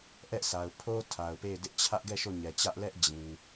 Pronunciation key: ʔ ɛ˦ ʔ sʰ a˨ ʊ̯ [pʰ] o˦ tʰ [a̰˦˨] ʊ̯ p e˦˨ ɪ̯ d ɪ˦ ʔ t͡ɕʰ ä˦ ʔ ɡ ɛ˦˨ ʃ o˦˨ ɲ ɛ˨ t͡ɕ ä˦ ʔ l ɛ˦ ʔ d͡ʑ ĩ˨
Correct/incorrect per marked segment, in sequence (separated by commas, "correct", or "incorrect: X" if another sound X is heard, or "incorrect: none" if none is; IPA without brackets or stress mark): correct, incorrect: a˨